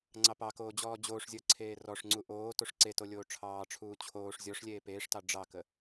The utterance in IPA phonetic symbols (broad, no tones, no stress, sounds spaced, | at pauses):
ŋ͡ǀ ɑ p ɑ k oː d͡ʑ ɔː d͡ʑ oː ʂ zʲ əː ǀʰ eː r ɔ ʂ ŋ͡ǀ u ʔ oː t o ʂ ǀ e t o lʲ oː ʈ͡ʂʰ ɑː ʈ͡ʂʰ uː t͡ɕʰ oː ʂ zʲ ɔ ʂ lʲ eː p eː ʂ t ɑ ɖ͡ʐ ɑ k ə